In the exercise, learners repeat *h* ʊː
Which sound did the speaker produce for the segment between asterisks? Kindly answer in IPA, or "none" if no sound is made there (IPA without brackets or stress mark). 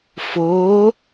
f